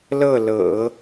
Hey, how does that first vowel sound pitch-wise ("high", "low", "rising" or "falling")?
falling